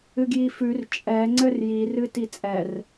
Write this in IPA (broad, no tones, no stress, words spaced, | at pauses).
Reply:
ɨɡjifʉr t͡ʃʼɛ ŋ͡ǀɘrjirɨ tit͡sʼɛr